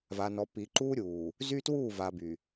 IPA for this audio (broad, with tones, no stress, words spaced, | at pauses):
va˨nɔ˨ piː˨ǃuː˦ ɾʲuː˨ | zy˦twuː˦˨va˨ by˨